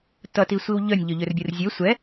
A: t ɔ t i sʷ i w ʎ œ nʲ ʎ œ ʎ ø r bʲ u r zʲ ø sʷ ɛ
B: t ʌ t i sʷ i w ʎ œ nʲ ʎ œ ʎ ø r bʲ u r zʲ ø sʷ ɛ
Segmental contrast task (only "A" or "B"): B